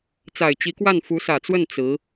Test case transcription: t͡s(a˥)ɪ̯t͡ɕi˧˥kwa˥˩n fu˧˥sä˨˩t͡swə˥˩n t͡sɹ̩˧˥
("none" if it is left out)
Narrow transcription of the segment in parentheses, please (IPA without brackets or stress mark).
a˨˩